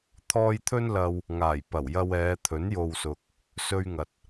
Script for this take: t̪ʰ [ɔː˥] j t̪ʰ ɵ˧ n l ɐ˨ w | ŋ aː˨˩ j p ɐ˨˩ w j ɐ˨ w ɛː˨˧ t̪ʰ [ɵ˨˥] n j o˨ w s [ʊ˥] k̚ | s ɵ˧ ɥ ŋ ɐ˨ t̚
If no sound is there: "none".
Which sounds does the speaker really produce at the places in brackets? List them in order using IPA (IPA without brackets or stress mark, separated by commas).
ɔː˧, ɵ˨˥, ʊ˨